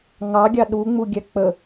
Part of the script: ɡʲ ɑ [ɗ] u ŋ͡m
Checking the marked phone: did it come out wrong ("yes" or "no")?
no